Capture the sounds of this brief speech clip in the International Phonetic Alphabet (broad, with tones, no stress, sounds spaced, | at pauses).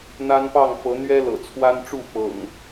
n̪ a˦ n p ɑ˥˨ ŋ f ɤ˨˦ n̪ ɥ ɛ˦ l ɤ̰˨˩ t͡sʰ w a˦ n ʈ͡ʂ u˥˨ f ɤ̰˨˩ ŋ